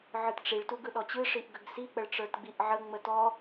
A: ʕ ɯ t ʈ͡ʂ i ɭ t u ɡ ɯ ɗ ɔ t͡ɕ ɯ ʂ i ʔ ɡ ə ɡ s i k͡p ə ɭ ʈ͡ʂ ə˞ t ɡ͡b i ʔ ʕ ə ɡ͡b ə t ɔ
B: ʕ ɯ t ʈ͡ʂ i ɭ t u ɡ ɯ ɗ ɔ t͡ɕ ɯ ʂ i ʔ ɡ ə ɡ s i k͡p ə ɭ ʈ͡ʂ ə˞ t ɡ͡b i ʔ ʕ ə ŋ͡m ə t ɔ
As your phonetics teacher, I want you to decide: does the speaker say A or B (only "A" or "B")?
B